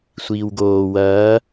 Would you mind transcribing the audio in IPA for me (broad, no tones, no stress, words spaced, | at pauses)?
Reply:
sʷiːwɡoː wɐː